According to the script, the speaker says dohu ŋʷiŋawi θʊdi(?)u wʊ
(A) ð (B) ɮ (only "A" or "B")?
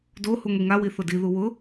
A